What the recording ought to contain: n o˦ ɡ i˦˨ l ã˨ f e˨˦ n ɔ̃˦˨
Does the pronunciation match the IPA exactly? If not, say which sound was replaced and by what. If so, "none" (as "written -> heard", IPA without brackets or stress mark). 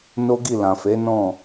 none